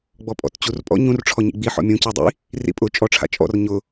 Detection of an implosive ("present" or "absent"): absent